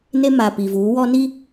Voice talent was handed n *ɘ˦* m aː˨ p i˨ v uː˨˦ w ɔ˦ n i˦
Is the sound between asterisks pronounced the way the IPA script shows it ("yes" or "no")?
no